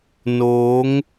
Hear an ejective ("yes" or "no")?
no